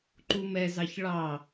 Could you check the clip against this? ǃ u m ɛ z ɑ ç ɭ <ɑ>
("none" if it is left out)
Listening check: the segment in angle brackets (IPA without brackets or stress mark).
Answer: ɑ